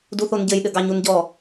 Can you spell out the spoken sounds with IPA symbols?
d u θ o n ɟ ɘ j ɗ ɘ ɡ ɑ ɲ u n ɟ ɔ

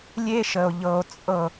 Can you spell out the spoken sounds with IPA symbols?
lʲ e˦ ʃ ə˨ o̯ ʎ ɤ˨ o̯ t͡sʼ ɤ˦˨

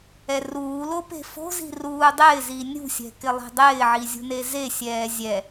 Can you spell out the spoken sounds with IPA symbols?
ɛ r uː l o p e̤ f o̤ z i̤ r uː dˤ ɪː z i nʲ ṳ sʲ ɛ̤ k ɪ lˠ ɛ̤ dˤ ɪː ʕ i zʲ ṳ n e z e sʲ ɛː zʲ ɛ

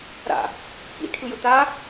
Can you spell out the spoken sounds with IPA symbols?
ɾ a̰ | p ḭ ʈʰ ɯ j ʊ t a

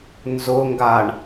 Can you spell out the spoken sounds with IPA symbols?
n z ʊ ŋ ɡ a ɳ

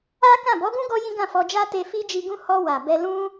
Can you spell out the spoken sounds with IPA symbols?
a˦ k ã˦˨ b ɔ˨˦ ɡ ũ˦ ɡ ɔ˦ j ĩ˦ ɡ ã˦˨ f ɔ˧ d͡ʒ a˦ t e˧ f i˦ d͡ʒ i˧ ɡ ũ˦ h ɔ˧ w a˨ b ɛ˧ l ũ˦

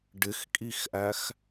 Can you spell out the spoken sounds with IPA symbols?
ɖ ɪ x kʼ i x ʔ æ x

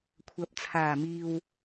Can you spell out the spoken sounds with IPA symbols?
kʷʰ ɐ˨˥ p̚ t͡sʰ aː˨˩ m iː˨ w

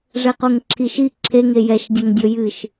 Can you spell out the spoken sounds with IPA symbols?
ʐ ɛ q o ŋ ǁʰ i ʃ i ǁʰ e ŋ e j ɛ ʃ dʲ ɐ ŋ dʲ o j ɨ ʃ

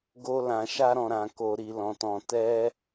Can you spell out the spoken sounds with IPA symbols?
ɡ o˦ l ã˧ ʃ a˦ ɾ ɔ̃˧ ɾ ã˧ k o˧ ɾ i˧ l ɔ̃˧ t ɔ̃˧ t ɛ˦

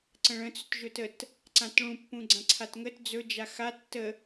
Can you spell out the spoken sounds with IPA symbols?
ǀ ə̃ ɭ ə̃ t͡s ɵ t ʒ ɵ t ə t | ǀ ã t ɭ ũ pː ũ ɡ͡ǀ ã ǀʰ a t ŋ ə t d͡z ɵ d͡ʒ a x a tː ə

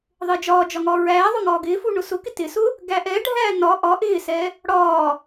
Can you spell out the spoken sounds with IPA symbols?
ðˤ ɪː d͡ʒ ɒː d͡ʒ ɒ ŋ ɒː ɹ æː ðˤ ʊ ŋ ɒː ɡ ɪː f u ɳ ʊ s ʊ k ɪ t ɪ s ʊ | ɡ æ ʔ ɛ ɖʱ æː n ɒ ʔ ɒ ʔ ɪː s ɛ | ɽ ɒː

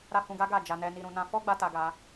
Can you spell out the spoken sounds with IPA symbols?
ɾ a˦ h ũ˧ ɡ a˦ ɡ a˦˨ d͡ʒ a˧ n ɛ˧ n i˧ ɾ ũ˧ n ã˧ f ɔ˦ ɡ͡b a˦ t a˧ ɡ a˧

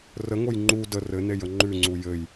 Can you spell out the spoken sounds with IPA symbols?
r ə ŋ o j ŋ͡ǃ u d ə r ɘ n e j ə ŋ͡ǃ ʉ ŋ͡ǀ u j ɘ j

